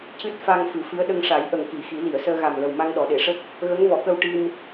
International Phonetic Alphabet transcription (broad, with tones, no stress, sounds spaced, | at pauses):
c ɨ˦˥ t̚ f a˧ ŋ f ɨ˨˩˦ f ɨ˧˥ ə̯ ɗ ə˧ ŋ ʂ a˨˩˦ j ʔ ə˨˩ ŋ k i˨˩˨ x i˨˩˦ l i˨˩˨ ə̯ s əː˧ ɣ a˨˩ m l ə˨˩ w m a˧ ŋ ɗ ɔ˨˩˨ ɗ e˨˩˨ ʂ ə˦˥ k̚ | ɣ ə˧˥ ŋ v ɔ˨˩˨ k ə˧ w ʈ i˧ m